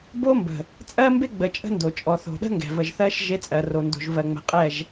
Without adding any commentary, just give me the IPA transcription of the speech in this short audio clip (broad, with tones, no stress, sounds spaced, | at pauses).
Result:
b o˦ m b ə̤˨ | t͡sʼ ɜ˦ m b e˦ ɡ͡b ə˨ t͡ʃʼ ə̤˦ n d o˨ t͡ʃʼ ɔ˨ θ o̤˨ ɗ ə̤˦ ŋ ɡ ɛ̤˨ v ə˨ ʒ θ ɜ˦ ʃ ʒ e˦ t͡sʼ ɜ˨ r o˨ n d o̤˨ ʒ v ɜ˨ ŋ͡m ɛ̤˨ qʼ ɛ˦˨ ʒ